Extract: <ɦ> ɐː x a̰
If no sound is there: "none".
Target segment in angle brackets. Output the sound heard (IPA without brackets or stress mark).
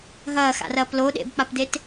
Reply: ɦ